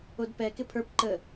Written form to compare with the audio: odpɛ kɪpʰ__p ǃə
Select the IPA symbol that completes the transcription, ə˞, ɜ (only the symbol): ə˞